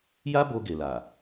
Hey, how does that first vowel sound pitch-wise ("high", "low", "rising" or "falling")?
high